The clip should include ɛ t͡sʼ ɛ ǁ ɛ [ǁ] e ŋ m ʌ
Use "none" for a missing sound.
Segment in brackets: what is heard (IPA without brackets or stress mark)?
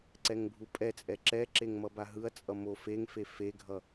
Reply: ǁ